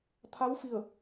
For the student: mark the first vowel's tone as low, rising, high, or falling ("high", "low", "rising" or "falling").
rising